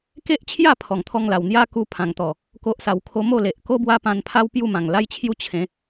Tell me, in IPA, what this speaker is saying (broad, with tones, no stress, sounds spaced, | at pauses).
k e˦ ʔ t͡ɕʰ j a˥˧ pʰ ɔ˨˩ ŋ t̪ʰ ɔ˧ ŋ l a˨˩ w n̪ j a˦ k u˧ pʰ ã˨˩ ŋ t̪ ɔ˨˩ | k o˦ ʔ s a˧ w kʰ o˦ m o˥˧ l e˨ ʔ k o˦ b w a˦ p ã˧ n pʰ a˦ w p j u˥˧ m ã˨˩ ŋ l a˦ j t͡ɕʰ j u˦ t͡ɕʰ ẽ˨˦